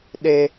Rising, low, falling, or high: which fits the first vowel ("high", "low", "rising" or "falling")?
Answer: high